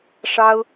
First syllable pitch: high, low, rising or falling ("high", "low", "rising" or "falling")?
high